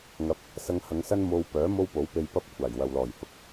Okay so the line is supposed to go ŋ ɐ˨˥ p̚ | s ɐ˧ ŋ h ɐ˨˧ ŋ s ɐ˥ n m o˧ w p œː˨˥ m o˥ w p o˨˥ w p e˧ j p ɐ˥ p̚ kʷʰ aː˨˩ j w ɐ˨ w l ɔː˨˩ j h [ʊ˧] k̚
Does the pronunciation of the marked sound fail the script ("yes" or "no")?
yes